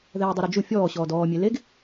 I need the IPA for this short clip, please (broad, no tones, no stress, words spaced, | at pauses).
ðɛːdˤuɾod͡ʒu fʲɔːɕɔːd ɔːmʲe leɡ